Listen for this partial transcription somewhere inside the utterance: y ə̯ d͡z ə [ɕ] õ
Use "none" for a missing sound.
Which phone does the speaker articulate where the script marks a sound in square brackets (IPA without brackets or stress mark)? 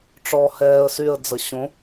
ɕ